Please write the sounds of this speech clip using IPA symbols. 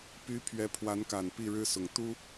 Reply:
p y˧˥ pʰ ɥ ɛ˧˥ pʰ w a˧˥ n k a˨˩ n p i˥˩ ɻ ɻ̩˥ s ʊ˨˩ ŋ t̪ u˥

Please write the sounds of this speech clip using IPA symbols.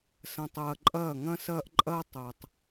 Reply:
s ɐ̃˨ tˤ ɐː˨ ǃʼ ɐː˦˨ ŋ ɐ̃˦ s ɐː˦ ʔ ǃʼ ɐː˦ tˤ ɐː˨ tˤ

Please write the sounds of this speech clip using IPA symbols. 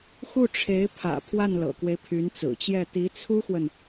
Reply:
x u˥˩ ʈ͡ʂʰ e˧˥ ɪ̯ pʰ ä̰˨˩ pʰ w a˥˩ n l ɤ̰˨˩ k w e˦ ɪ̯ pʰ y˧˥ n t͡s ɹ̩˨˩ t͡ɕ j ɛ˥˩ t̪ i˧˥ t͡sʰ u˥ x w ə˨ n

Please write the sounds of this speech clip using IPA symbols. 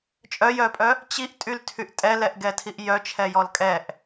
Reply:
t͡ʃʼ œ j œ pʼ œ | t͡ɕ i ʔ tʼ y l tʰ y ʔ tʼ ɛ l ɛ ʔ ɡ ɛ tʰ i ʔ j œ t͡ʃʰ ɛ j ɔ l kʼ ɛ ʔ

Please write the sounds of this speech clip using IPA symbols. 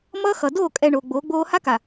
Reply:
m ʌː˦ x ʌ˨ d oː˦˨ kʼ ɛ˨ ɳ oː˨ ɡ͡b oː˨˦ ɡ͡b oː˦ h a˦ k a˨

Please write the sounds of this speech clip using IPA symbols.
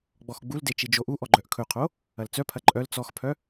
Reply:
ɡ͡b ɔ x ɡ͡b u l d e t͡ʃ i d͡ʒ o ʔ u ʔ ɔ ɡ͡ǃ œ ʔ kʰ ɵ qʰ o | ɐ l t͡s œ pʰ ɐ ǃʼ œ l t͡s ɔ x pʰ œ

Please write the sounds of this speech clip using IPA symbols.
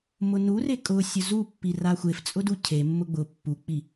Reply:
m ʊ n u r e kʼ ʊ sʲ ʊ z u pː i r a xʷ e f t͡sʼ ʊ d u cʰ e mː ʊ ɡ͡b ʊ pː u k͡p i

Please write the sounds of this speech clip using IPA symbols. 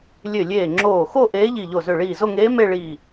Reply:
lʲ ø˧˩ lʲ eː˧˩ ŋ͡ǁ oː˧˩ x o˥˧ ʔ eː˧˥ ʎ i˧˩ ʎ o˧˩ z ø˧˩ ɭ iː˧˩ z o˥˧ ŋ eː˧˥ m e˥˧ ɭ iː˧˩

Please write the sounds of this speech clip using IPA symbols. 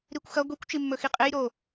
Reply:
ɾ i kʷ x ɐ ɡʷ i kʷ t͡ʃ i mː ɵ x i qʼ e j ɾ o

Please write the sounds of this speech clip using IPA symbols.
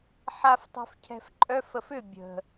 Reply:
ħ a f tˤ ɛ̤ f cʰ ɛ̤ f ǃʼ œ f ə f ʏ bʲ ə̤

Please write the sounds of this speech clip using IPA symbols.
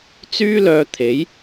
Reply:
t͡s yː˥ l œː˧ t̪ʰ e˨˥ j

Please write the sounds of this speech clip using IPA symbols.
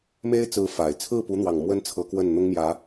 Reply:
m e˥ ɪ̯ t͡s ɹ̩˧˥ f a˨˩ ɪ̯ t͡sʰ ɹ̩˥˩ p u˧˥ n̪ w ɑ˨˩ ŋ m w ə˥ n t͡sʰ ɤ˧˥ k w ə˥˩ n n̪ ʊ˥ ŋ m j ä˧˥

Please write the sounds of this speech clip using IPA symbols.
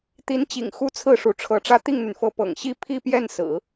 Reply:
t̪ i˧˥ n t͡ɕ ḭ˨˩ ŋ x u˥ t͡sʰ ɹ̩˥˩ ʂ u˧˥ ʈ͡ʂʰ ɤ˧˥ ʈ͡ʂ ä˥˧ t̪ i˥˩ ŋ n̪ y˩ n f ɤ˧˥ p ɤ̰˨˩ ŋ ɕ i˥ pʰ i˥˧ p j ɛ˥˩ n s ɹ̩˨˩˦

